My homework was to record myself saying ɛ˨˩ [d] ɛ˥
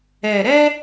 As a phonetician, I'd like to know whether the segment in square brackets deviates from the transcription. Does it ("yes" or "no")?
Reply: yes